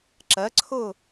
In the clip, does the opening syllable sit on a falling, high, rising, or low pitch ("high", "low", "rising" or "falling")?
rising